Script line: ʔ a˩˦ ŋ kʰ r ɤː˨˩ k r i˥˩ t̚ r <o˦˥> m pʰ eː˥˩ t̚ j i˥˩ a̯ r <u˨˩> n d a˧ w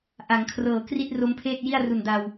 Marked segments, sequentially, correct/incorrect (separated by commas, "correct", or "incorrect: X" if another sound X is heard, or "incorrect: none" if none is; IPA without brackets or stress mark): correct, correct